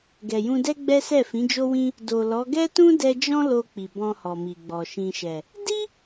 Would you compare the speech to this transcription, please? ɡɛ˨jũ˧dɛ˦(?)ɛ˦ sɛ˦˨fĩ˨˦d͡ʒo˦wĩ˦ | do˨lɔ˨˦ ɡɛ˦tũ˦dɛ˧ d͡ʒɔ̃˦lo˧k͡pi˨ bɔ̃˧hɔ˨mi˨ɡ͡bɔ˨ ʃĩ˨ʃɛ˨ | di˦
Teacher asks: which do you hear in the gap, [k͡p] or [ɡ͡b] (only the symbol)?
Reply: ɡ͡b